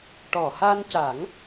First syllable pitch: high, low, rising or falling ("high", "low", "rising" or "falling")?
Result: low